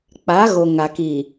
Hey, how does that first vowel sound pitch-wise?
rising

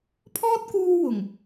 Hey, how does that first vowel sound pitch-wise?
high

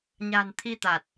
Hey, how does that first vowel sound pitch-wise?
low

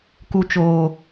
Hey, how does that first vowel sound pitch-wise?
low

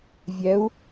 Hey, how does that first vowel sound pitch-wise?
rising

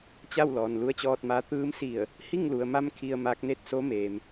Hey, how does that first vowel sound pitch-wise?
falling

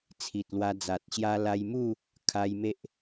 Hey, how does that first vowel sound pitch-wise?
low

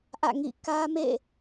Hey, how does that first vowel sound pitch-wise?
falling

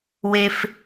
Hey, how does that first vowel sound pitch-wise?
high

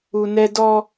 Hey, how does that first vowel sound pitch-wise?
high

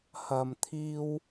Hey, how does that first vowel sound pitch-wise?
low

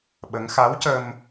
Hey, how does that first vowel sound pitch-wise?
rising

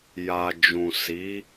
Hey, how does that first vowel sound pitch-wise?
low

